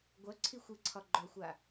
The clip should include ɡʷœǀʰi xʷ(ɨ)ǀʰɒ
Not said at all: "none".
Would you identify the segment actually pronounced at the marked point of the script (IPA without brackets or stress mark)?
ɨ